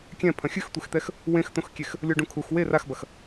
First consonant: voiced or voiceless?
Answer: voiceless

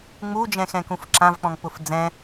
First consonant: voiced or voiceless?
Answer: voiced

